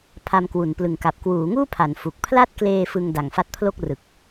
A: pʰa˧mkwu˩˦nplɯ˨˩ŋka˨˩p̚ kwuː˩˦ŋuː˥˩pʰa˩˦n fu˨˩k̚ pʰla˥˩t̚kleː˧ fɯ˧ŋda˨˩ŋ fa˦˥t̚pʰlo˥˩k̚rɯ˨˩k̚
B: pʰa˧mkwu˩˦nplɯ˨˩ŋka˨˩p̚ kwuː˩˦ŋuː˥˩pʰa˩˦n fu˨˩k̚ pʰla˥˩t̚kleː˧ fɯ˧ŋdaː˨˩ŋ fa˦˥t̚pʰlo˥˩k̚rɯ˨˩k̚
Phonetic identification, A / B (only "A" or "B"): A